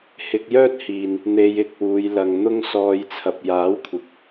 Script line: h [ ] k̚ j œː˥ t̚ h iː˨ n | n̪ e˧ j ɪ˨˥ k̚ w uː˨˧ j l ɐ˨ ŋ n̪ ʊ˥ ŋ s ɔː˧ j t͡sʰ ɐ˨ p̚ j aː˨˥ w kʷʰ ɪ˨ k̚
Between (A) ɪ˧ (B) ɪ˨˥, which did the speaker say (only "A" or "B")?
A